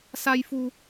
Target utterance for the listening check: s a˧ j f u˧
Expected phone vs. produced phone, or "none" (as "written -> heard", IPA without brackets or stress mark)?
none